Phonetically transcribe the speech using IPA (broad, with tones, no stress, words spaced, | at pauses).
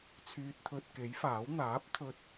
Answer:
t͡sʰyː˧t̚t̪ʰɵ˧t̚ ke˨˥jfaː˨˥w n̪aː˨˥p̚ t̪ʰɵ˧t̚